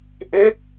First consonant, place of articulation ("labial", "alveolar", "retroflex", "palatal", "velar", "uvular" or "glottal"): glottal